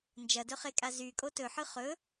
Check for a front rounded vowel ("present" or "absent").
present